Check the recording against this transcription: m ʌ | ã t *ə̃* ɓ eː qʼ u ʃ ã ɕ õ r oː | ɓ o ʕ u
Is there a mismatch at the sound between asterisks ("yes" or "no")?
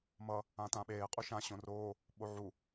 yes